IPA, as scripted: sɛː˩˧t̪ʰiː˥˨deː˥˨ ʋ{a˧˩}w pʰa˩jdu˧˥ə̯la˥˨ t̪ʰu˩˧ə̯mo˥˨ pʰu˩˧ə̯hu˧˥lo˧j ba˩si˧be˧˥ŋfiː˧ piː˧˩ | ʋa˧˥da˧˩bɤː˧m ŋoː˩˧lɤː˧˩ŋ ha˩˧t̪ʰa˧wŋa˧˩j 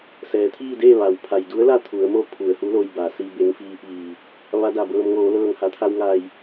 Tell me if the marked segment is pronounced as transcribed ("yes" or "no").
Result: no